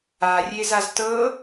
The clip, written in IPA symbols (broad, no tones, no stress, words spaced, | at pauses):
arʲezaz tɤ